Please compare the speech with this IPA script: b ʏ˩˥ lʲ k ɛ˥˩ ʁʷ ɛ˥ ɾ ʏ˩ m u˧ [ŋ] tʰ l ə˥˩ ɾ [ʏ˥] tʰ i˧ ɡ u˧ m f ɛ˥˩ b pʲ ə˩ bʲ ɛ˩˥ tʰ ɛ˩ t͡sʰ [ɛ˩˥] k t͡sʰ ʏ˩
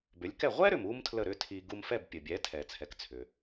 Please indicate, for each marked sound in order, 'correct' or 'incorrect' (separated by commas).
incorrect, correct, correct